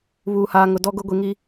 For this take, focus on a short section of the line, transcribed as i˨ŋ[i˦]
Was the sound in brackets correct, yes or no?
yes